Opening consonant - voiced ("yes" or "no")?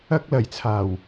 no